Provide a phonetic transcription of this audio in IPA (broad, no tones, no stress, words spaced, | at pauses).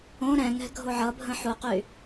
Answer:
õ ɾɛ̃ŋɛ̤ ɡʱoʕʌbʱə̃ ħuqy